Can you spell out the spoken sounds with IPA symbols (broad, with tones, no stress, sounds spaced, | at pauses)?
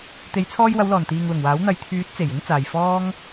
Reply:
t̪ e˨˧ j t͡sʰ ɔː˧ j w ɐ˨˧ w l ɔː˨˩ n t̪ iː˨ ŋ l ʊ˨˩ ŋ w aː˨˥ w n̪ ɐ˨ j t̪ʰ yː˨˥ t̚ t͡s e˨˩ j ɪ˥ ŋ t͡s aː˨ j f ɔː˥ ŋ